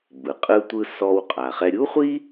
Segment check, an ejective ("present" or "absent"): present